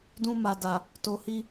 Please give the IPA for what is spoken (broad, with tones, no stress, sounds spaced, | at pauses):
d ũ˧ m a˨ d a˨ | t o˧ h i˦